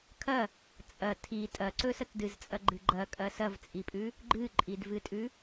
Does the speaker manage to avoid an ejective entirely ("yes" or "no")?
no